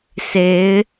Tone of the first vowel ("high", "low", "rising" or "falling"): rising